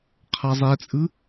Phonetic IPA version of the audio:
qʰ a zˤ ɛ t͡sʼ ɯ

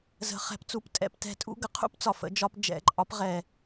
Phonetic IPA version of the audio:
z ə̤˨˩˦ χ ɛ̤˩˥ p t͡s u˨˩˦ p tʼ ɛ̰˨˩˦ p t ɛ̤˨˩˦ tʼ ṵ˥˧ ɡ ə˩˥ qʰ ṵ˥˧ p t͡s ɒ˩ f ə̰˨˩˦ d͡ʒ ɒ˨˩˦ p d͡ʒ ɛ̰˨˩˦ ǃʼ ɒ˩˥ p ʁ ɛ˩

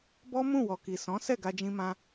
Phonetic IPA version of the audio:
b ɔ˦ m ũ˦˨ w ɔ˨ k i˨ s ɔ̃˨˦ s ɛ˦˨ ɡ a˧ d͡ʒ ĩ˧ m ã˧

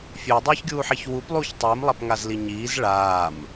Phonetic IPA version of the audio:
fʲ ø dˤ øː ç ɡʲ uː ħ i ç w u p lˠ uː ç tˤ iː m lˠ a p ŋ a z l i ɲ iː z ɭ aː m

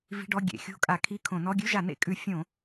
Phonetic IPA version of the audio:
v i̤˧˥˧ ɖ ɔ˧˥˧ ɡʲ ḛ˧˩˧ xʲ o̤˧˥˧ kʼ a˧˩˧ kʰ i˧˥˧ kʰ õ˧˩˧ n ɔ˧˥˧ ɡʲ ʉ˧˥˧ ʒ a˧˩˧ n ḛ˧˩˧ kʼ ʉ˧˩˧ fʲ õ˧˩˧

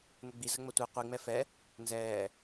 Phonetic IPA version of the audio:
n ə ɡ͡b i z ə ŋ͡m ə tʷ i qʷ i ŋ͡m ɛ f ɛ | n z ɛː

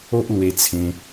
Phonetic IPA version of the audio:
o˦ ʔ l w e˧ t͡sʰ ẽ˧

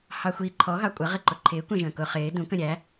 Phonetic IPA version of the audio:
h ɑ xʷ i ǃʰ ɔ ɣ ɑ kʷʼ ə ʁ ɪ ǃ ʊ ǃʰ ɪː kʷ ɛ̃ ʒ ə̃ː k ʊ χ ɪː d ũ k ə̃ ɾʲ æ

